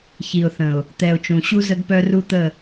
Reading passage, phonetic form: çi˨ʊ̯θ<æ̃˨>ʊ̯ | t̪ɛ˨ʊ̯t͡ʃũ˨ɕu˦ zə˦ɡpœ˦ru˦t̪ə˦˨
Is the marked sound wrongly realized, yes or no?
yes